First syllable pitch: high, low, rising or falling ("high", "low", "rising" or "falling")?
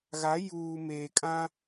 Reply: rising